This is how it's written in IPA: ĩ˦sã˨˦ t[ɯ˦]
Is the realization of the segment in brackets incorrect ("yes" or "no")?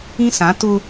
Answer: yes